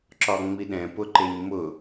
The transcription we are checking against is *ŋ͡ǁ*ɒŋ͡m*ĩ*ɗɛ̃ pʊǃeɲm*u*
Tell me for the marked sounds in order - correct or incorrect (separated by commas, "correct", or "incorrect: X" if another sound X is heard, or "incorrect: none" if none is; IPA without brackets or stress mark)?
incorrect: ǁ, incorrect: i, incorrect: ʊ